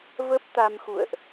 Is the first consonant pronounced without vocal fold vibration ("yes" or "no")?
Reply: no